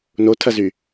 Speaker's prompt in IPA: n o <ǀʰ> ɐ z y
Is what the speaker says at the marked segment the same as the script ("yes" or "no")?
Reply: no